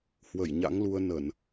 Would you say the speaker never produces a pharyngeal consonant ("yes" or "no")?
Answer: yes